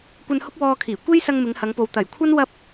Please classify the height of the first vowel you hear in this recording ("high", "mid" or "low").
low